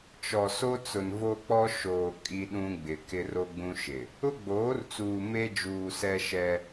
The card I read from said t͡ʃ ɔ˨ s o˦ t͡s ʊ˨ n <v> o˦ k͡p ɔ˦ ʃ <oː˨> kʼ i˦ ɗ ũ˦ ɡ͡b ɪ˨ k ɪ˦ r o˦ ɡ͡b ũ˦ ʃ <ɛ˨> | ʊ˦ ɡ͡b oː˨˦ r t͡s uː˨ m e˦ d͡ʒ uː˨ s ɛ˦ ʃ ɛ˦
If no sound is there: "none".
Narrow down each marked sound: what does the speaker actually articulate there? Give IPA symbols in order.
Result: v, oː˨, ɪ˨

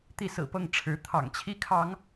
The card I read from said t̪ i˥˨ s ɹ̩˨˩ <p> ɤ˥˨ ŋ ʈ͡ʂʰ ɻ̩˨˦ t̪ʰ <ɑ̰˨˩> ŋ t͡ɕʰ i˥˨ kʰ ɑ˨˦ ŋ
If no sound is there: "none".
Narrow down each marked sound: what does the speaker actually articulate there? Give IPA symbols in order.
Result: p, ɑ̰˨˩

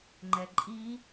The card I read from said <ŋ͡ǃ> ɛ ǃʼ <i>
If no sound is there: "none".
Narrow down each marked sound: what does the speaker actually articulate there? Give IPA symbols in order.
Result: ŋ͡ǃ, i

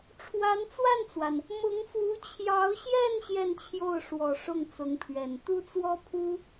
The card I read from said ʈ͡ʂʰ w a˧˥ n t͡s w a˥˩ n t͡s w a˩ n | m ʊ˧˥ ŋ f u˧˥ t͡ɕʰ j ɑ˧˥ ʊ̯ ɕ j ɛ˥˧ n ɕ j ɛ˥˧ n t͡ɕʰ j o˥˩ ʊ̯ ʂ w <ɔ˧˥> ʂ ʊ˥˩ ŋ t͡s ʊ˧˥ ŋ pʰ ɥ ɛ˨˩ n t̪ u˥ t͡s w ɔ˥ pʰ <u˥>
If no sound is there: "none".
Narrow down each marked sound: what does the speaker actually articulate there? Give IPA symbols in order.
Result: ɔ˨˩, u˥

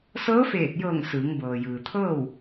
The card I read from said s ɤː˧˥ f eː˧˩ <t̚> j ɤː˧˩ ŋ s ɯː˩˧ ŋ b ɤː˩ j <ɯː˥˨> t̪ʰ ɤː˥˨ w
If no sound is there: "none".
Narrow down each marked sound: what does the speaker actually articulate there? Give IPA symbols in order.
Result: t̚, ɯː˩

